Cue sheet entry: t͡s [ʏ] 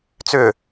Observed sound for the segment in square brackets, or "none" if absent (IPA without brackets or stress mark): ʏ